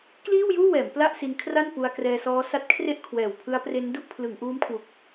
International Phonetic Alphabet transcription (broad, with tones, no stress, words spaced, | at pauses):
kliː˥˩wjuː˥˩wɛː˩˦m pla˥˩ʔsi˧nkʰra˥˩n pu˧a̯krɛː˧sɔː˦˥ sa˦˥t̚kʰre˥˩ʔ kʰwɛː˨˩wpʰɯ˦˥a̯pre˦˥n du˥˩ʔpʰlɯ˩˦ŋʔuː˦˥mkʰwu˨˩k̚